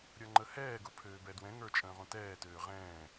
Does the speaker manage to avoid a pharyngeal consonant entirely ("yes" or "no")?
yes